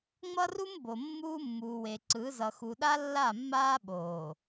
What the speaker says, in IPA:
ŋ͡m ʌ˦ r u˦ m b o˨ mː uː˦ mː uː˨ w e˨ ǀ ɯ˨˦ z ʌ˨ x u˨ ɗ a˦ lː a˦˨ mː aː˦ ɓ oː˨

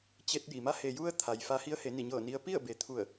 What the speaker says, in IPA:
t͡ɕ e˧ t̚ j i˩ m a˧˥ h e˩ j u˧ ə̯ t̪ʰ a˩ j f a˧ h i˧˥ ə̯ h e˩˧ n i˧˩ ɲ ɤː˧˩ n i˧ ə̯ p i˥˨ ə̯ b e˩˧ t̪ʰ u˧˩ ə̯

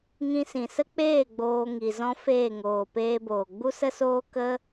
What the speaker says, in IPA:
ŋ ĩ˧ s ĩ˨ s ə˦ k͡p eː˦˨ ɡ͡b oː˧ ŋ i˨ z ɔ̃˦ f eː˦˨ ŋ oː˨ p eː˧ b oː˨ ɡ͡b u˦ s ə˦ s oː˦ k ə˦

